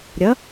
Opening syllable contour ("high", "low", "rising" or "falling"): rising